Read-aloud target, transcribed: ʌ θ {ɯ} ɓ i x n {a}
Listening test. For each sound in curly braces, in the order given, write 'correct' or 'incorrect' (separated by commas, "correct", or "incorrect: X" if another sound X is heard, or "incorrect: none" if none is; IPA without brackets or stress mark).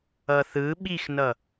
correct, incorrect: ʌ